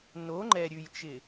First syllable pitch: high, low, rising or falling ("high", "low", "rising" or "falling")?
rising